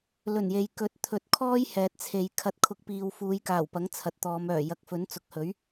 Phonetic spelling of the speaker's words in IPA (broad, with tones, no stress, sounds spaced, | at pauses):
l ɵ˨˩ n j e˨ j k ɵ˨˥ t̚ t̪ʰ ɵ˨ t̚ kʰ ɔː˥ j h ɛː˨ t̚ t͡sʰ e˨˧ j kʰ ɐ˨˥ t̚ kʰ ʊ˨˥ k̚ p iː˨ w f uː˨˧ j k aː˨˩ w p ɐ˨˥ ŋ t͡sʰ ɐ˨ t̚ t̪ ɔː˨˧ m œː˨˩ j ɐ˨ k̚ f ɵ˨˥ n t͡s ʊ˨˥ k̚ h ɵ˨˥ ɥ